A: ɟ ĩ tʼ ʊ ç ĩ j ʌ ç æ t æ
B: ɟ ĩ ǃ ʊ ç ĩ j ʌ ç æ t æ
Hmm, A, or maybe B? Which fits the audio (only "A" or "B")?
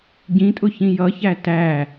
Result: A